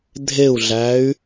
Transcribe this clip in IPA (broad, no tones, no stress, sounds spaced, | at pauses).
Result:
dʱ e u̯ ɮ æ y̯